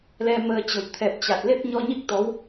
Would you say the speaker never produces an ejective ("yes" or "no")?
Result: yes